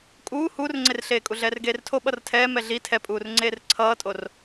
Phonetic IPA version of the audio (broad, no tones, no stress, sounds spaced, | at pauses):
kʼ uː h uː r ŋ͡ǀ e r ɬ eː kʼ u ɮ ɛː r ɡ eː r tʰ o ɓ ʌ r tʰ ɛː m ɛ ɮ i tʰ ɛ pʼ uː r ŋ͡ǀ eː r ǀʰ ʌː tʼ o r